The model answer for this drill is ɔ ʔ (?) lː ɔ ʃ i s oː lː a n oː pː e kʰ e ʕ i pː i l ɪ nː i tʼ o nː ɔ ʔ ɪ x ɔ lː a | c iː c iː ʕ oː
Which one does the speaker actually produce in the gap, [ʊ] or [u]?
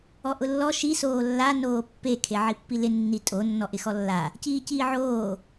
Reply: ʊ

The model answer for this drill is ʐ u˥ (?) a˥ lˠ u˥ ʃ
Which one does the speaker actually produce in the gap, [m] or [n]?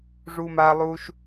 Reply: m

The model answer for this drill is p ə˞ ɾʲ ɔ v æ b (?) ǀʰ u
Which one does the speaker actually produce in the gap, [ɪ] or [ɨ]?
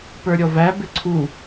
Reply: ɪ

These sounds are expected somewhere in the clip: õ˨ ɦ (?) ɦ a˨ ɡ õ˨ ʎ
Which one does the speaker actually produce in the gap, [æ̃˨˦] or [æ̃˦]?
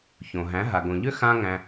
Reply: æ̃˨˦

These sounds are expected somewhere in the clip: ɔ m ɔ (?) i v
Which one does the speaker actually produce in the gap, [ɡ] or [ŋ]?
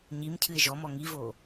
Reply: ŋ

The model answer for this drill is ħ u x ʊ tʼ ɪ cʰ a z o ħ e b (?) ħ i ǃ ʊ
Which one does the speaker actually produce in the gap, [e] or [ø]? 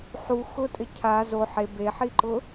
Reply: e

